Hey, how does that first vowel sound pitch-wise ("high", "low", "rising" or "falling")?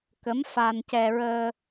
rising